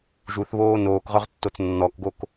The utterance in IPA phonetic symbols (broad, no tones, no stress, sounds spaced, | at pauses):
ʒ u θ β oː n oː k ʁ œ ʁ tː o t͡s nː ɔ k ɡ o k